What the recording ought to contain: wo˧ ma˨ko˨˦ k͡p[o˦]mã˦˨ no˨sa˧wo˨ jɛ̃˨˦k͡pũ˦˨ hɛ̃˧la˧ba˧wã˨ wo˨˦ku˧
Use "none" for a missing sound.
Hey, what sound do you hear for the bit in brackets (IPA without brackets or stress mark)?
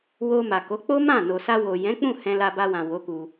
o˦